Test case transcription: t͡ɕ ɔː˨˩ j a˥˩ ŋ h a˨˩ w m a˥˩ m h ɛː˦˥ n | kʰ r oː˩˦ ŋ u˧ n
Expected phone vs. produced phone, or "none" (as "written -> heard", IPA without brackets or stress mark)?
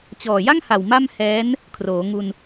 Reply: none